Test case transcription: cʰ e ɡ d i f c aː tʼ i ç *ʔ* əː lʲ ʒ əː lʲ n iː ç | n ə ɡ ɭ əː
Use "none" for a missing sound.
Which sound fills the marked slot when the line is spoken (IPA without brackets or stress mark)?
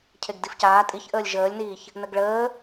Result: ʔ